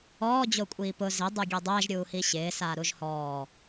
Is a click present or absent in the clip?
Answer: absent